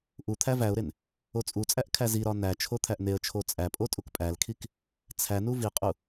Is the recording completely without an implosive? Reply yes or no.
yes